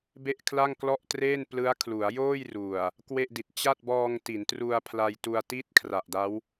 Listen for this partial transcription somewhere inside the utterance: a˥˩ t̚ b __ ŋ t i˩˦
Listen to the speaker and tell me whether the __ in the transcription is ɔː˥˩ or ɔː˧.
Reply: ɔː˧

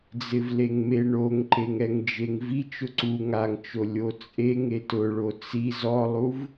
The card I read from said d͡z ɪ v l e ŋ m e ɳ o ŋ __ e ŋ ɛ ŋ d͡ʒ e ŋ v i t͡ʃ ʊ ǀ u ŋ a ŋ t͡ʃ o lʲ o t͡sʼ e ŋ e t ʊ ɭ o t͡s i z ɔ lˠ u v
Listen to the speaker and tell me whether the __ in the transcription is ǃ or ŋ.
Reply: ǃ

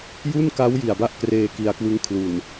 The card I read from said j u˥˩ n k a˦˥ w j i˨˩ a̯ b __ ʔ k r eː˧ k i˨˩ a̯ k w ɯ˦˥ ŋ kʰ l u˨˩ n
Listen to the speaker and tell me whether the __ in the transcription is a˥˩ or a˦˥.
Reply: a˥˩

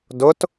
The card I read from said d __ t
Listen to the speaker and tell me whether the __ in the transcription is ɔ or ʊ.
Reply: ʊ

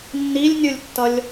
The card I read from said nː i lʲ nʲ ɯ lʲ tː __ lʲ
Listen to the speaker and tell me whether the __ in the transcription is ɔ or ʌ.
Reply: ʌ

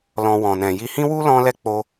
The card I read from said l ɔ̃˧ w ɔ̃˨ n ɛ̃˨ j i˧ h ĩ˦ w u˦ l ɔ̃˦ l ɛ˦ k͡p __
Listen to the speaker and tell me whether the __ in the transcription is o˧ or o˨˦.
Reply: o˧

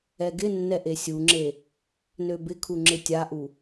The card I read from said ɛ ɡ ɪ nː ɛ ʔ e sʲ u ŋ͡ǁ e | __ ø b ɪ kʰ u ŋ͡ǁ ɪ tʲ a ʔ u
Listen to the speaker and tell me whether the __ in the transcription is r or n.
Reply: n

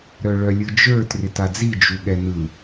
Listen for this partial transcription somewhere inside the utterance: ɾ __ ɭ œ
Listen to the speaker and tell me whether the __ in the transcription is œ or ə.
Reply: œ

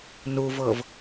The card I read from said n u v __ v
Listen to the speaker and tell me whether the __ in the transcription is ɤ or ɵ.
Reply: ɤ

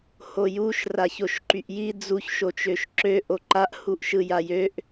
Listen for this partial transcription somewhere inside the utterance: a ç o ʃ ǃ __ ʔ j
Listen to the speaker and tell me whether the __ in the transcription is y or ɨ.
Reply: y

